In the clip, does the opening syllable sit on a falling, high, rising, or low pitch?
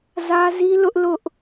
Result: high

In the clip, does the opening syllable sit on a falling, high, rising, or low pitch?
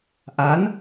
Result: rising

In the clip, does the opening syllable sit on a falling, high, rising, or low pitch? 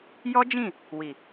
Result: high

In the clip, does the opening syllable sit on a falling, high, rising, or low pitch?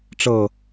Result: falling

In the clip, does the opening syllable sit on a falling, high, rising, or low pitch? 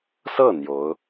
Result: falling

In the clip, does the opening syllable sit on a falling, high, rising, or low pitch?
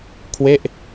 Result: falling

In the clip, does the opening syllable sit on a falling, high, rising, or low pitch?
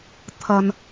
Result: low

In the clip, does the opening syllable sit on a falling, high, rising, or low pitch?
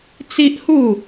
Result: high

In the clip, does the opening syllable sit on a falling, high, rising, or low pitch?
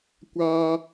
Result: high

